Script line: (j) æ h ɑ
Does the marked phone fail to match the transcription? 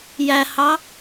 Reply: no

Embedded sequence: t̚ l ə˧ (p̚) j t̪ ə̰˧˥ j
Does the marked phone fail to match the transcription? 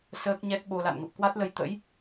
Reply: yes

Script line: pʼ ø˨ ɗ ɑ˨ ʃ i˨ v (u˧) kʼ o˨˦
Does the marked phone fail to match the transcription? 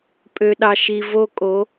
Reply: yes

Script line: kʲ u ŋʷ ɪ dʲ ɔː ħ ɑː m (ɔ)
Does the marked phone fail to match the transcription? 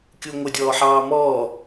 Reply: yes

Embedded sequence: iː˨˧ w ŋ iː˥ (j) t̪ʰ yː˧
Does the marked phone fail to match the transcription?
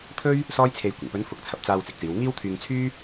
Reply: yes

